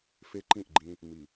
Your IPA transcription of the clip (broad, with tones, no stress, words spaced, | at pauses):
fe˦ǃĩ˦˨ʔɡ͡ǃĩ˦ | mi˨